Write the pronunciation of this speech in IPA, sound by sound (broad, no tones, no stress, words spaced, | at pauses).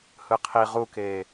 hɯqʰi ʁukeː